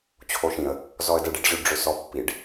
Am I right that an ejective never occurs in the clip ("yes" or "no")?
yes